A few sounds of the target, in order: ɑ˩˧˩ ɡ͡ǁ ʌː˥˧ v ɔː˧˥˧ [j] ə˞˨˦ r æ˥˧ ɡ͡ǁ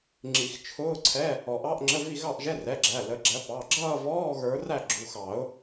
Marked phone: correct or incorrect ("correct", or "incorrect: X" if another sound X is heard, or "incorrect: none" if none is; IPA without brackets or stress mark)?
incorrect: ɣ